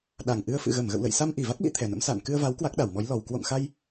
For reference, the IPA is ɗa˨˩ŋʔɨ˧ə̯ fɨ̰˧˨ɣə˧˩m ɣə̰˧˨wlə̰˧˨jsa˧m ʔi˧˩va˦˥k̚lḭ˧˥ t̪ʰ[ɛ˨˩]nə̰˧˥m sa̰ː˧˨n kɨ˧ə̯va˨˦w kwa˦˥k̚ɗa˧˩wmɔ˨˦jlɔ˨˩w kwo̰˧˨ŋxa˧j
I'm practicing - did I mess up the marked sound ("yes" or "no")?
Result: no